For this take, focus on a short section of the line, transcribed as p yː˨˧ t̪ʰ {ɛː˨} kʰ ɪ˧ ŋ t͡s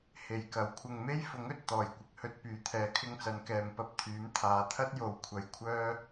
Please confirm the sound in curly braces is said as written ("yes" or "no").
no